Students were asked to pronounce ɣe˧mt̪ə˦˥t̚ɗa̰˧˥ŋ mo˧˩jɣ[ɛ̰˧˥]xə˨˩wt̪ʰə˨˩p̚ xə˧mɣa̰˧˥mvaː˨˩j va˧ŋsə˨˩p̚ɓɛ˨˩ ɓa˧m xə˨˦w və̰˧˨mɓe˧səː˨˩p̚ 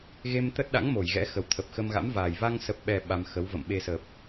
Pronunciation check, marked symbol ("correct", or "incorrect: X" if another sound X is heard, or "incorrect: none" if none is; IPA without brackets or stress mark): correct